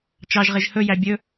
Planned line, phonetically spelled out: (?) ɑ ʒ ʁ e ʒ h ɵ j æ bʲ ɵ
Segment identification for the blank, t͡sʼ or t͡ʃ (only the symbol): t͡ʃ